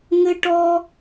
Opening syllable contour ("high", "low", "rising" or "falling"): high